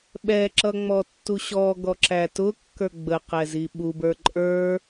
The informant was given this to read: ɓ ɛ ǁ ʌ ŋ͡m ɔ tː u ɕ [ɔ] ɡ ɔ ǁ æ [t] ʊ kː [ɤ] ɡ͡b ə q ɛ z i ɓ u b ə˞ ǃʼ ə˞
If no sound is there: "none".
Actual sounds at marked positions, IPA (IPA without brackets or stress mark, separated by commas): ɔ, t, ə˞